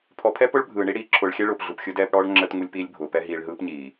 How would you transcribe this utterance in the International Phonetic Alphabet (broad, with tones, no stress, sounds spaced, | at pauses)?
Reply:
pʰ ɔ˨ pʰ ɛ˦ p ʊ˦ ɭ bʱ ɯː˨ ɳ i˦ ɽ iː˨ ǁʰ ʊː˨ ɭ xʲ ɛ˦ ɭ ʊː˨ p ɮ u˨ p xʲ ɯ˦ d ɛː˦ p ɽ ɔː˦ ɭ ŋ͡ǁ əː˦ t ŋ u˦ lʲ p iː˦ lʲ bʱ ʊː˨ p ɛ˦ ɦ iː˨ ɭ ɦ ɯː˦ p ɲ iː˨